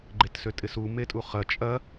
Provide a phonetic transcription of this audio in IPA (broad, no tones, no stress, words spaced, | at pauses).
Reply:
ɡ͡ǃetsøtʼɪsu metʼuχɐ t͡ʃʼɐ